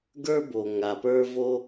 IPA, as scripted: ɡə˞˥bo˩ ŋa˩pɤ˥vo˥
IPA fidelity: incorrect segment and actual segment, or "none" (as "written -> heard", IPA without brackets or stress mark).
ɤ˥ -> ə˞˥